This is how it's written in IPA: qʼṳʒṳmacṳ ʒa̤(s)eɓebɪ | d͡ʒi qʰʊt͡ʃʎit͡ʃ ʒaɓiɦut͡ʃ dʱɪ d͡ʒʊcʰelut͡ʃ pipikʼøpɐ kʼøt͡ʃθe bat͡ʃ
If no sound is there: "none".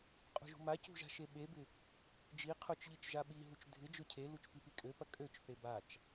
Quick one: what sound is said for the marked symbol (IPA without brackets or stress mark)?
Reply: ʃ